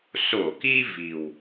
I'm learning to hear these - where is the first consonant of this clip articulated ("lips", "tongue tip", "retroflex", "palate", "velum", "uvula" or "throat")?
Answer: tongue tip